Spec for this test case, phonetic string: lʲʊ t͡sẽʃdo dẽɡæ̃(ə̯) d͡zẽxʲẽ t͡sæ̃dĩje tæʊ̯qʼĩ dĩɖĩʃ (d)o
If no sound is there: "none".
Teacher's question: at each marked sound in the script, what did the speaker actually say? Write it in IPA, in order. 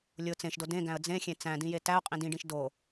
ə̯, d

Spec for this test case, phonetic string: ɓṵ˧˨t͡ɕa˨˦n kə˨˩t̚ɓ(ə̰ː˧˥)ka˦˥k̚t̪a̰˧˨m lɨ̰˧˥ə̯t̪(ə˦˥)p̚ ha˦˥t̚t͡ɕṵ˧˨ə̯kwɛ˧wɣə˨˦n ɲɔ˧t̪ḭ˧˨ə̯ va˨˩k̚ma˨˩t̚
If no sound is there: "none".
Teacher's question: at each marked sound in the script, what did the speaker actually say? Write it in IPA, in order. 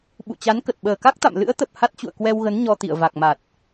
əː˨˩, ə˨˩

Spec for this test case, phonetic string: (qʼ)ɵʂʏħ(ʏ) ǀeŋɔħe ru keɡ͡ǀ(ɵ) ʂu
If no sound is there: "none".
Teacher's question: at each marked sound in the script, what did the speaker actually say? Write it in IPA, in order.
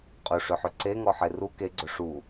qʼ, ʏ, ɵ

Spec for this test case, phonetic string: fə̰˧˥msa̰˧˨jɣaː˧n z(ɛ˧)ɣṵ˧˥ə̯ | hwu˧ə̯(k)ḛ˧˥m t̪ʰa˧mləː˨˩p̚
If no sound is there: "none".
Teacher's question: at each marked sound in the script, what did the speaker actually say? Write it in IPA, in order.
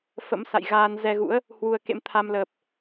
ɛ˧, k

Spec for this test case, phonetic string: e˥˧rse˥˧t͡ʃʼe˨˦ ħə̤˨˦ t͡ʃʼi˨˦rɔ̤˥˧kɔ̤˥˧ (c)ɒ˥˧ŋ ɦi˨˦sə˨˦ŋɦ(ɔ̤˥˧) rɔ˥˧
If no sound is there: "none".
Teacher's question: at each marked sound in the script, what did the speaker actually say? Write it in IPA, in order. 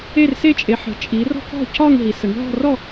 c, ɔ̤˥˧

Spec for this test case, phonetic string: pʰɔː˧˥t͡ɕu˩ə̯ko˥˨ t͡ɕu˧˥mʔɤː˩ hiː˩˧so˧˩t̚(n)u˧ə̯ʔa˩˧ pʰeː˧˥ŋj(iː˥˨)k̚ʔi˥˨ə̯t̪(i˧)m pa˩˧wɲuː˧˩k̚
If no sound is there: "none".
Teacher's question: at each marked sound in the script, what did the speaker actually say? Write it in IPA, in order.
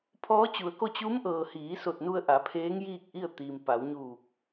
n, iː˥˨, i˩

